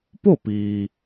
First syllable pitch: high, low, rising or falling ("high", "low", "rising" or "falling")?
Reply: falling